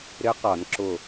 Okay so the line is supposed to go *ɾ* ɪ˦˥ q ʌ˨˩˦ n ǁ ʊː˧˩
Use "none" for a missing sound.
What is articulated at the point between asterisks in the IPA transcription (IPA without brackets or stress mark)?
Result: ɾ